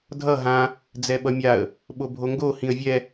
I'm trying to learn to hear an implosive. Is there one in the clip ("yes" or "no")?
yes